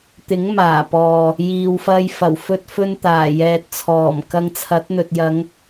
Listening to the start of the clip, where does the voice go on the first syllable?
rising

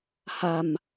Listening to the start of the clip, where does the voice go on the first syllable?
low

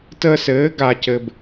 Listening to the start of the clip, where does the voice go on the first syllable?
high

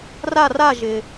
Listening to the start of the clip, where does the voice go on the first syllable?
falling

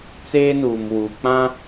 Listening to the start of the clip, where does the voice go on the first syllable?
high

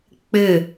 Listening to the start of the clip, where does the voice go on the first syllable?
falling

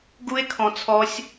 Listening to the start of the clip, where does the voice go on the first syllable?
high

